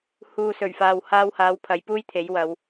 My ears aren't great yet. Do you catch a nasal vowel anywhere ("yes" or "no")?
no